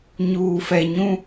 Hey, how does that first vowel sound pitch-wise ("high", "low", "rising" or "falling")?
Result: low